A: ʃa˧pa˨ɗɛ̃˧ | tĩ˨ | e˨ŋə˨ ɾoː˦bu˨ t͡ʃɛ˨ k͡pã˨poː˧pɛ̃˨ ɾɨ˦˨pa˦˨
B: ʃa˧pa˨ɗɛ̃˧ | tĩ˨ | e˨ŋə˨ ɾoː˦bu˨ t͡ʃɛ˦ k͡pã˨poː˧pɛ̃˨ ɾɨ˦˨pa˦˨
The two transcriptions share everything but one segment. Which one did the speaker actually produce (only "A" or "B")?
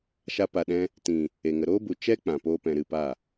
B